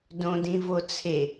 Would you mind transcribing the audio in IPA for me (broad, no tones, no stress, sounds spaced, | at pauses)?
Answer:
d õ d ĩ v o t͡sʰ e